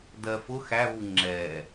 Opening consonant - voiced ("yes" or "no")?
yes